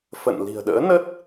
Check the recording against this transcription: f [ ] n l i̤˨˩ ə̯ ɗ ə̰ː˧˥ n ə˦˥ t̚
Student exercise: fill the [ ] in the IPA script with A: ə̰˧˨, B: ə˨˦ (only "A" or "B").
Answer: A